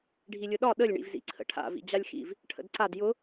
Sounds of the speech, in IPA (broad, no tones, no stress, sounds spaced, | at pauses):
ɖʱ i lʲ ʊ ɗ ɒ ɗ ə lʲ ɳ ḭ v z ḭ ǀʰ ə̰ ʈʰ a̰ v ḭ d͡ʑ a lʲ x ḭ v | ʈʰ ə̰ d ǀ a d j ʊ